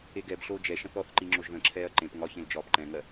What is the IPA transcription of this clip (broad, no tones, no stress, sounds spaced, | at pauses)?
e ɡ ɛ b ɬ oː d͡ʒ ɛ ʃ ə̃ θ ɔ θ ǃ i ŋ͡ǁ o ʒ ð ə̃ ǁʰ ɛː ɐ̯ ǃ ẽ p ŋ ɒ ç ẽ l d͡ʒ ɒː p ǃ ɛ̃ ŋ ɜ